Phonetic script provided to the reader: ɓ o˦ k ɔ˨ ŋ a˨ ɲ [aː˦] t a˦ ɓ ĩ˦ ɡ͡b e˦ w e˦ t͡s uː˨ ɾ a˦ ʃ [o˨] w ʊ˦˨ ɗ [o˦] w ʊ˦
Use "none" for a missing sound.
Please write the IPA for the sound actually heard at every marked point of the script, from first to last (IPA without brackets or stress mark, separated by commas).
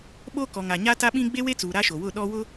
a˦, o˨, ɔ˦